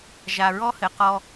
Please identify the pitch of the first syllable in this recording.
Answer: low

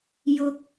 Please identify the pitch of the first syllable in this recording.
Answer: high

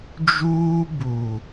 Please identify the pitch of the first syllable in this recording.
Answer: high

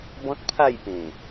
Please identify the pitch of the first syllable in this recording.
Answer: high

